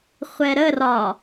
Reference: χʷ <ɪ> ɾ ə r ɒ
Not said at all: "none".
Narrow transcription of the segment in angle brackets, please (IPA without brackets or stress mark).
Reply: ɛ